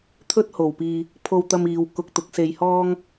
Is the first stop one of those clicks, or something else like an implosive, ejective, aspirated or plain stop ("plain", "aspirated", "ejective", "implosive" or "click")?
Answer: aspirated